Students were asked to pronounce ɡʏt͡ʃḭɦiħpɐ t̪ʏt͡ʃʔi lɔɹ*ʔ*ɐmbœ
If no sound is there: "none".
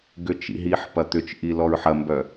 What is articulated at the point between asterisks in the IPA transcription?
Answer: ħ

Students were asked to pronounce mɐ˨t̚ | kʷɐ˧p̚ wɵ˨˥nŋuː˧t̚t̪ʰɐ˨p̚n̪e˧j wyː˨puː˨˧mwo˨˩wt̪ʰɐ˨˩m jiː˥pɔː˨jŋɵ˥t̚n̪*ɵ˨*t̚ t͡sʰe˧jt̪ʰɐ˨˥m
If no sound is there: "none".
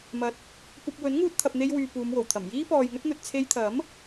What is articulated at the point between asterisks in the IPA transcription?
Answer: ɵ˨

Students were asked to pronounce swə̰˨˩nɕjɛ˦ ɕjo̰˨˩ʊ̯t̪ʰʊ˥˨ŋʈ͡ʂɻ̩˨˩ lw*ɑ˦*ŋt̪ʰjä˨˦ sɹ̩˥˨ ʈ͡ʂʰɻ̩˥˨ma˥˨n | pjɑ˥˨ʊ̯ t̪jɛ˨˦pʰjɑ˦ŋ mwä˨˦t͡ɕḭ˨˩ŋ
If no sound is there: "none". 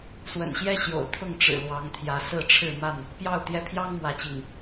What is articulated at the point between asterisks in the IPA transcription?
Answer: ɑ˨˦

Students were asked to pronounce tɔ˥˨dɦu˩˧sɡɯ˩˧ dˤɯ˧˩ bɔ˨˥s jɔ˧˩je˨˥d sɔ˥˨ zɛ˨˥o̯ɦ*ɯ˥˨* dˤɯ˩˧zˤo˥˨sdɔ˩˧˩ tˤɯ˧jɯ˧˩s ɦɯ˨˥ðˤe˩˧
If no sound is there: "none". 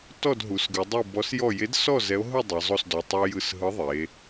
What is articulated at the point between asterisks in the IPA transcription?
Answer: ɯ˥˨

